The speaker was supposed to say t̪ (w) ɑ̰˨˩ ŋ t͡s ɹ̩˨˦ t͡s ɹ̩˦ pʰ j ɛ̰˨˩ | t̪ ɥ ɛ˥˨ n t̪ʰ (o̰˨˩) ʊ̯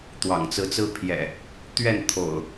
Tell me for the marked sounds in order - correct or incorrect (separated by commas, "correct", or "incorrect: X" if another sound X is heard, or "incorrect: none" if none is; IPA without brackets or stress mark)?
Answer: correct, correct